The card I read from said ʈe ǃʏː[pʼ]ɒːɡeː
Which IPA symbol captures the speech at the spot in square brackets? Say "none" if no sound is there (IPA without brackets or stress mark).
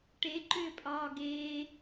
pʼ